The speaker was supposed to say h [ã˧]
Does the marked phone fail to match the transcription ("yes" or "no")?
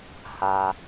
yes